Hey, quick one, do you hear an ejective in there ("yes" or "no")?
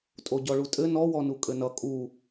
yes